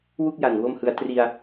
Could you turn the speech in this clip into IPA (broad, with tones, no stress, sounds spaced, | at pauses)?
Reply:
w u˥˩ k̚ j a˨˩ n w o˥˩ m h ɯ˧ a̯ t r i˧ a̯